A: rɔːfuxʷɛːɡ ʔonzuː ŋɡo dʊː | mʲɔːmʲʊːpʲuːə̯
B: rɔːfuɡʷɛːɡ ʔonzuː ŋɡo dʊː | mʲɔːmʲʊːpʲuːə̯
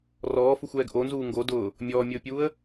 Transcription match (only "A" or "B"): A